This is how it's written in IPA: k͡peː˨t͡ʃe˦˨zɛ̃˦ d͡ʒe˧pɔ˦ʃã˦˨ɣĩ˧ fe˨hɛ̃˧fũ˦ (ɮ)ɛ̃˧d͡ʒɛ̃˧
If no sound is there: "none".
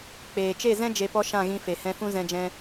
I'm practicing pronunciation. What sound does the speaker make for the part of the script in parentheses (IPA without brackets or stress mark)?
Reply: z